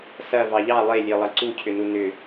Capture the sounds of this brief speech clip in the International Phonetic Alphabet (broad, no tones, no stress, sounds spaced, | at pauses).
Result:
s ɐ v ɑ ʎ ɑ lˠ e lʲ e lˠ ɐ ǀ u cʰ ʏ n u n ʏ